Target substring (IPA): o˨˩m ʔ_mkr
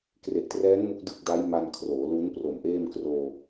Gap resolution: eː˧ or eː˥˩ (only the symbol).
eː˥˩